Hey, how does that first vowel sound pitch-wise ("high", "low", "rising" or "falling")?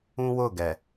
high